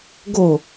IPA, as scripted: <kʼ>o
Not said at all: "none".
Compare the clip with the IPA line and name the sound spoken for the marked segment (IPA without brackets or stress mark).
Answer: ɡ